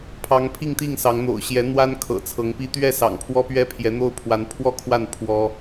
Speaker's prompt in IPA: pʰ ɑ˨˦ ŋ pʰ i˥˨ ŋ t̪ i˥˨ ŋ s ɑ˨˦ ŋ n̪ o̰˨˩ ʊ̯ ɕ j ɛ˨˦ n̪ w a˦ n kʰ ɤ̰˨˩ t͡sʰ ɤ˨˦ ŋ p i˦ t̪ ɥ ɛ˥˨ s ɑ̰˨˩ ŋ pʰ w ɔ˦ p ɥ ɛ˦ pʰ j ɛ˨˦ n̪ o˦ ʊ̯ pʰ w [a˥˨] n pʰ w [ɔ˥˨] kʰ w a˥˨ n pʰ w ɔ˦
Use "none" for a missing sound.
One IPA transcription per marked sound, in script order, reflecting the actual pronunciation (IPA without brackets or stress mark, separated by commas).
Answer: a˨˦, ɔ˥˨